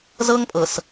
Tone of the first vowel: high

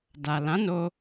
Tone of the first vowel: low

